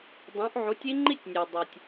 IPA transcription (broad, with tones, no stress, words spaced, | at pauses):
dˤõ˨˥ʔ ʕu˨˥tʲi˦˥ŋ͡ǃi˥˧tʲnʲɘ˨w dˤo˨tʲ